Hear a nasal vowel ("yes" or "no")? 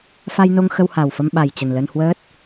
no